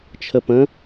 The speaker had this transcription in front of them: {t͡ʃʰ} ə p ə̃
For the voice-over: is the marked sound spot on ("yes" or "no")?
yes